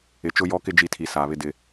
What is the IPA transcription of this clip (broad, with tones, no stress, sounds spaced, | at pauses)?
ɪ˨ t͡ʃ ʊ˦ j ɔ˦ k ɪ˦ d͡ʒ i˦˨ tʰ i˨ s aː˨ β ɪ˦ d ɪ˦